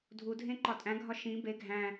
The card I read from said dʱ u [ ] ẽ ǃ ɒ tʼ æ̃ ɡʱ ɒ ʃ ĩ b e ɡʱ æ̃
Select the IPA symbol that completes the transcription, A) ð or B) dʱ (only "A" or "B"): B